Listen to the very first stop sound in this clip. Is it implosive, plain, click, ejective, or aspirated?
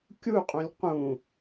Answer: plain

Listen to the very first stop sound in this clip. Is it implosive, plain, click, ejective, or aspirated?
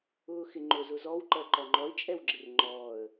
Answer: click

